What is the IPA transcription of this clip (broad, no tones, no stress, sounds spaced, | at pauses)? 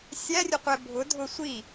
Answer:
sʲ æ rʲ ʊ qʷ ɛ bʱ ʊ dʱ ʊ sʷ i